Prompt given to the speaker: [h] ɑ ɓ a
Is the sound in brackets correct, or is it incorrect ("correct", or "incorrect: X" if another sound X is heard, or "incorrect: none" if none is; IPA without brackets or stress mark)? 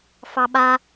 incorrect: f